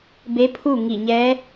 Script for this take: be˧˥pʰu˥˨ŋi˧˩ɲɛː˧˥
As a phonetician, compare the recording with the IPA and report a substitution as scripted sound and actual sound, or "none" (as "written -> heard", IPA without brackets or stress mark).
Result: none